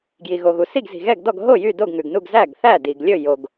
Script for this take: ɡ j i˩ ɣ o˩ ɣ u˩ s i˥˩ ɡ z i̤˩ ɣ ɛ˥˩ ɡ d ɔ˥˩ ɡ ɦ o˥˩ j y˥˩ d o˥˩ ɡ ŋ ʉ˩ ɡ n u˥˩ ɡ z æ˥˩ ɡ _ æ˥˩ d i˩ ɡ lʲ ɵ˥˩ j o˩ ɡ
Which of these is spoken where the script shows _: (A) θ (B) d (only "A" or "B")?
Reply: A